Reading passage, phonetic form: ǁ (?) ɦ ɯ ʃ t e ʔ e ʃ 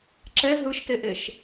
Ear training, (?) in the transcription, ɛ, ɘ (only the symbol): ɛ